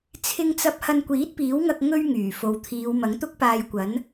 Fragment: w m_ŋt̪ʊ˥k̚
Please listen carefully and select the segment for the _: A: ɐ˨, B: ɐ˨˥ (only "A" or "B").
B